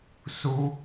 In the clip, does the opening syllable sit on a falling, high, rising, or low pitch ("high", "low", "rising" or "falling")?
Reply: high